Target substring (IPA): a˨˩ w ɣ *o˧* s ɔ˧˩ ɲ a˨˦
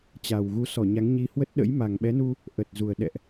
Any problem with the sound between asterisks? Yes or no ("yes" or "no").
yes